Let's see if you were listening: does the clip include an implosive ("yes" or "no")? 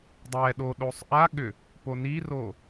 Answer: yes